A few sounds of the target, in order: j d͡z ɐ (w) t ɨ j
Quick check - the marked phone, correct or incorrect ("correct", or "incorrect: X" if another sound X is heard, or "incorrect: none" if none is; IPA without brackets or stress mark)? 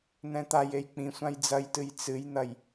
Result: incorrect: j